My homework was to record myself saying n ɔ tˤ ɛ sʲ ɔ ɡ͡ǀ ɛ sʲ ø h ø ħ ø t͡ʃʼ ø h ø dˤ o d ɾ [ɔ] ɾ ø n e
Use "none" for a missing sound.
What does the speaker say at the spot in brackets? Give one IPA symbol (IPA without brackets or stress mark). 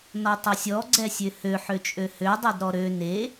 ɔ